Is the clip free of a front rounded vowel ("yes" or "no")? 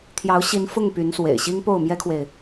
no